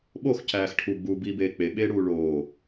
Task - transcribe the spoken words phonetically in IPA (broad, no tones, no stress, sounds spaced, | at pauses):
ɓ o x c æː x ʈʰ u ɡ͡b uː b iː b eː k͡p e ɓ eː ɽ uː ɭ oː